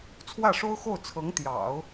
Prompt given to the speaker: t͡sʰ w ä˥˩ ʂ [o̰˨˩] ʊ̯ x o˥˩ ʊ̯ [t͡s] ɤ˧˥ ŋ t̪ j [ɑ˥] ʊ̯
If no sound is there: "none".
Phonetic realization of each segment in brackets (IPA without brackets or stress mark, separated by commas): o˥, t͡sʰ, ɑ̰˨˩˦